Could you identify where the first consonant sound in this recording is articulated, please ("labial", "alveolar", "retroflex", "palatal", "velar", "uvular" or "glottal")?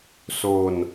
alveolar